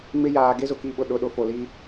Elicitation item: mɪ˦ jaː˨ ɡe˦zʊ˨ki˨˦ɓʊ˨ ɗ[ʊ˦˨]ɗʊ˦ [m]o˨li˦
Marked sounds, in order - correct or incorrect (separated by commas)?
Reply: correct, incorrect